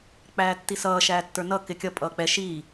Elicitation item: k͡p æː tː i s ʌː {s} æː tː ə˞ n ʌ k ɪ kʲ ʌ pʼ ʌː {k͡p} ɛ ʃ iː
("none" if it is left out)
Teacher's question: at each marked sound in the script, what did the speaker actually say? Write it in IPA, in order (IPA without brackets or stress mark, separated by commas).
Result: ʃ, k͡p